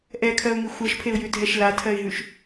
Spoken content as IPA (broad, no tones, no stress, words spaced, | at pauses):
ʔɛkʰɜʊ̯ŋi xʷɜʃpʰeʊ̯jʉdʱɛʃ latʰɜɪ̯ɦʉʃ